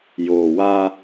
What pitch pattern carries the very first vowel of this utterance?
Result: low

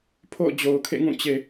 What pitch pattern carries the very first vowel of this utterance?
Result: falling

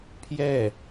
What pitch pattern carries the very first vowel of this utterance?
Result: falling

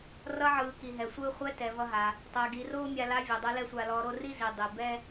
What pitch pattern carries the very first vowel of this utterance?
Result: rising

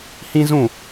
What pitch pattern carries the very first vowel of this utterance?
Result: high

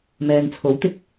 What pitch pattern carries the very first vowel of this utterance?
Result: low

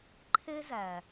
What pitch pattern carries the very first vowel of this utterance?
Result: high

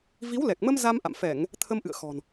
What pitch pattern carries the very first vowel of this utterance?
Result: rising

